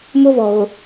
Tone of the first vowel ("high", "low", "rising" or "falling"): high